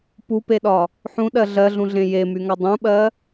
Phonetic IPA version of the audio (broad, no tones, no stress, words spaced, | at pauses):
pupeɗɒ | ħũɗɜ ɮɜɮũɮẽ jemyŋɒ dˤũɓɜ